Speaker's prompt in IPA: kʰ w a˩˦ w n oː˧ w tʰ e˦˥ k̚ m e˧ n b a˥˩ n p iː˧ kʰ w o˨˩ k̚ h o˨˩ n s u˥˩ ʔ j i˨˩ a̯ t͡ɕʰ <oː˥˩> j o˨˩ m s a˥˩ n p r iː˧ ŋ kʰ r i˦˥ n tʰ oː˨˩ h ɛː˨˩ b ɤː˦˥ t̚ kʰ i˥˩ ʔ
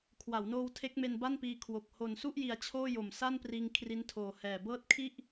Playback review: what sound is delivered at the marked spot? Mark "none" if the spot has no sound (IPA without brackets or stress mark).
oː˥˩